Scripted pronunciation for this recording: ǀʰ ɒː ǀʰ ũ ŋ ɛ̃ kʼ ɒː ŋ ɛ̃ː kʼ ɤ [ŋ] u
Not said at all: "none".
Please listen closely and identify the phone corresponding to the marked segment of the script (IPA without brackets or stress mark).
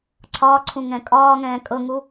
ŋ